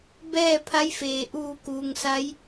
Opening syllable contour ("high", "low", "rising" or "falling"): falling